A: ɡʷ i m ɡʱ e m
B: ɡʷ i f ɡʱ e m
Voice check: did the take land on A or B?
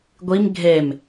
A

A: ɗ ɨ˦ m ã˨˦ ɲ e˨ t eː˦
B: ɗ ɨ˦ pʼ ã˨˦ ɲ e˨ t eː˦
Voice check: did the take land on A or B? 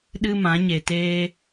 A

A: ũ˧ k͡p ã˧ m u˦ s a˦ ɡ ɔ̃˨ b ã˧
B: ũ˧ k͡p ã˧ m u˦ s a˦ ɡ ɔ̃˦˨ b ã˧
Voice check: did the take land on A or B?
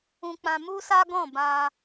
B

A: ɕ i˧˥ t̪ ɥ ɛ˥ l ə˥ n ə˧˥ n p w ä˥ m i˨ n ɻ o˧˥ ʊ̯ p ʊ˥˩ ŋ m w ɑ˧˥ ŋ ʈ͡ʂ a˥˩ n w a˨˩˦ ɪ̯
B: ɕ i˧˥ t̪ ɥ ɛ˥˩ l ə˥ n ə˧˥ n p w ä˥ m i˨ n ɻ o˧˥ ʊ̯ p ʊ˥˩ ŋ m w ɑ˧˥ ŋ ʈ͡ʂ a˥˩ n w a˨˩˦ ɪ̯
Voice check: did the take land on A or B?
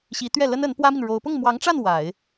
B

